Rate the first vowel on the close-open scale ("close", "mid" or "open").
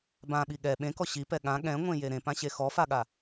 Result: open